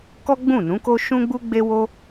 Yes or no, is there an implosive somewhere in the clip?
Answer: no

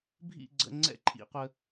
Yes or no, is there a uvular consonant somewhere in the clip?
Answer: yes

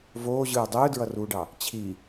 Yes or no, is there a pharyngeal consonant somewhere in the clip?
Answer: no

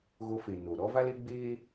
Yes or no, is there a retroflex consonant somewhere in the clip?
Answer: no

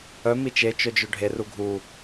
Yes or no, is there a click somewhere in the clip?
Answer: no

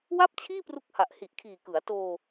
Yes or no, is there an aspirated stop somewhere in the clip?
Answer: yes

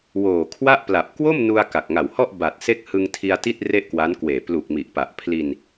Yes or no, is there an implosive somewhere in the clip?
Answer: no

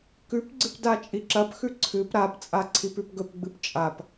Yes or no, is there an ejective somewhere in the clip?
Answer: yes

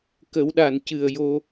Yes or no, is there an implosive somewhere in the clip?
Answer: yes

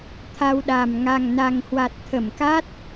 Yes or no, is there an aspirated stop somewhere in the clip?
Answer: yes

